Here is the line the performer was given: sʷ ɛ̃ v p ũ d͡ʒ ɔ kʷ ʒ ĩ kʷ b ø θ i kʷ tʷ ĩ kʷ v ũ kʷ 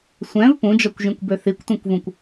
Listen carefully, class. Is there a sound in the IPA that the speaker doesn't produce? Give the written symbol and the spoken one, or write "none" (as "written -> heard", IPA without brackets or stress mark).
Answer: none